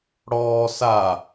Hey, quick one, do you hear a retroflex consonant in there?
yes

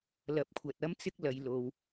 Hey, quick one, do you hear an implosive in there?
no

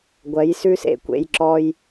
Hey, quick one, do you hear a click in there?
yes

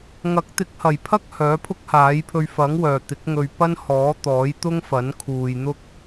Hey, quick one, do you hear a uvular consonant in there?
no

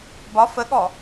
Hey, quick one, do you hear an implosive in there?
yes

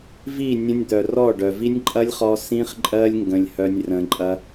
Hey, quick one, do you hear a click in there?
yes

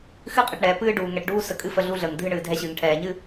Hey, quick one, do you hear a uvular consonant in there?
yes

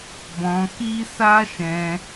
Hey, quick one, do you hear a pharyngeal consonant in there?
no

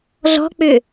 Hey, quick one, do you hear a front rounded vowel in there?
yes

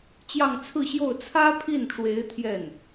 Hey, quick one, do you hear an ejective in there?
no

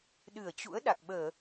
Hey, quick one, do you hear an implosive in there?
yes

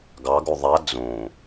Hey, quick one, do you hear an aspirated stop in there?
no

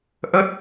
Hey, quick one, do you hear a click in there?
no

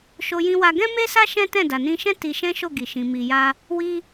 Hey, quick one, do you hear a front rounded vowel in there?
no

